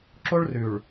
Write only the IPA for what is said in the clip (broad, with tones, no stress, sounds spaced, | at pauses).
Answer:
ǁ o˦ ɭ r ʉ˨ ɭ